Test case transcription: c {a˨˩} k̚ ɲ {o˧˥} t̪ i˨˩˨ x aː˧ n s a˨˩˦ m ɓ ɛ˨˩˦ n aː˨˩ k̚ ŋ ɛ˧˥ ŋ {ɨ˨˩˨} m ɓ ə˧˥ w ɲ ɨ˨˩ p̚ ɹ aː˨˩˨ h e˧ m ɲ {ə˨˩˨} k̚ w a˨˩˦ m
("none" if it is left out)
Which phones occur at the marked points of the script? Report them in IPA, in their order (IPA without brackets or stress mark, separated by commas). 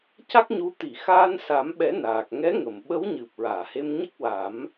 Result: a˦˥, u˧˥, ə˨˩˨, ə˦˥